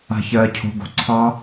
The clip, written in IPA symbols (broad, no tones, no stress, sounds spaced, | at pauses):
a̤ ç ɜː cʰ o̤ ɡ o̤ ǀʰ ɑ